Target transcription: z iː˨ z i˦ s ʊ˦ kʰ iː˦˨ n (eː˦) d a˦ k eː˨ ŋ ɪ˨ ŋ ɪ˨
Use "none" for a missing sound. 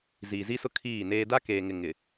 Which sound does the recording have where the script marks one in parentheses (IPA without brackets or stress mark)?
eː˦